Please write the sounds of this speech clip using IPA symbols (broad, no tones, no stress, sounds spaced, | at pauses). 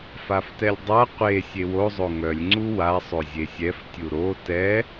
f a f t ɛ lʲ dˤ a qʷ e sʲ e w o zˤ o ŋ œ lʲ ŋ͡ǀ u w a sˤ o zʲ e sʲ ɛ f tʲ u ɾ o t ɛ